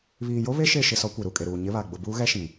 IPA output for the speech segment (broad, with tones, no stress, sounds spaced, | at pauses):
β iː˨ j o˦ β e˦ ʃ e˦˨ ʃ ɪ˦˨ s ɔ˦ kʷ e˨ ɾ u˨ kʼ e˨ ɾ uː˨ ɲ ɪ˦ β a˨ ɡ͡b ʊ˨ b uː˦ ɣ ɛ˦ ʃ ĩ˨